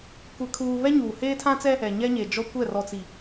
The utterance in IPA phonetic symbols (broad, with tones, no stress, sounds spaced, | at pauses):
kʷ ɛ˦ kʰ uː˦ β ɛ˦ ɲ uː˨ h eː˦ tʰ ã˦ t͡s ɛ˦ | ɛ˨ ɲ ɛ˦ ɲ e˨ d͡ʒ ɔ˦ kʷ ɛ˦˨ r ɔ˨ t͡s i˨